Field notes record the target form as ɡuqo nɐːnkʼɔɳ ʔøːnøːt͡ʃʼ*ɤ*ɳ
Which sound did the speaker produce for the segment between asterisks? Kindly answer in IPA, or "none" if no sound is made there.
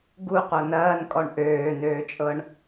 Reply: ɤ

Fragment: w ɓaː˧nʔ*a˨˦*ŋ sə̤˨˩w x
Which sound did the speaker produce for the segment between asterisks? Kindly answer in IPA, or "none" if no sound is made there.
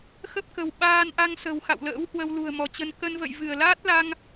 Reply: a˧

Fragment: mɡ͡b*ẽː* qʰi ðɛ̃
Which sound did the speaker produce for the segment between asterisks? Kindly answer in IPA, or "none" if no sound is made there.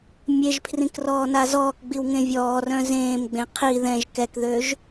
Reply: ẽ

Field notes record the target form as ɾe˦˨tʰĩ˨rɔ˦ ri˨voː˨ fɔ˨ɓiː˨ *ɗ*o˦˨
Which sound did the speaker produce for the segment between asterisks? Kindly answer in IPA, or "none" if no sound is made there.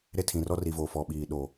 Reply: ɗ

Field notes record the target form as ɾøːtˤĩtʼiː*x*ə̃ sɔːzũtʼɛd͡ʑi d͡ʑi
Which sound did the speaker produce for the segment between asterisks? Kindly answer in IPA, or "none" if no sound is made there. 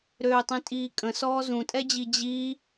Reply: kʼ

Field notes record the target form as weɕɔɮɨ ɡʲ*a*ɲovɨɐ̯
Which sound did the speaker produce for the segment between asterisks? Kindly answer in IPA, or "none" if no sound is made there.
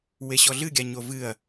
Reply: a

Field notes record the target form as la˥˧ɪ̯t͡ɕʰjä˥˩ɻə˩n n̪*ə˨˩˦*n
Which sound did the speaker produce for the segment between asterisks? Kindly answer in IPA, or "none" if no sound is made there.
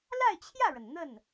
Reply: ə˥˩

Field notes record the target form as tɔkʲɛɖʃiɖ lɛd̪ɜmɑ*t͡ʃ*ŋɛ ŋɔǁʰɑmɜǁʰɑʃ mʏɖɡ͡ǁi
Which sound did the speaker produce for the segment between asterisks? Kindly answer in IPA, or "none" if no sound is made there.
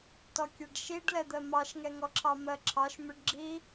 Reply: ʃ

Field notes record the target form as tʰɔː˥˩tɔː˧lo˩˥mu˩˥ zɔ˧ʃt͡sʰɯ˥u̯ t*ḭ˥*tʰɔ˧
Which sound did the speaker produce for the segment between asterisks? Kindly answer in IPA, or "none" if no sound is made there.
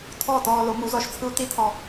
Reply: i˥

